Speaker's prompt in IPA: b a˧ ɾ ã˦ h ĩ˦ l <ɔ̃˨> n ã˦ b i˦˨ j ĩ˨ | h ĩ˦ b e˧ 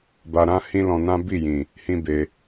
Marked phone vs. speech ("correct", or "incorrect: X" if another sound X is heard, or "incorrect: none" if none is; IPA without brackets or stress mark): incorrect: ɔ̃˧